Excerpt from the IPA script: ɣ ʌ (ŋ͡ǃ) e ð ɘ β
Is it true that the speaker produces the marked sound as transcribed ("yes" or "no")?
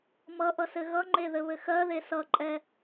yes